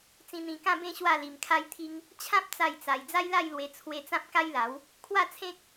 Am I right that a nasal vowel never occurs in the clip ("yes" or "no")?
no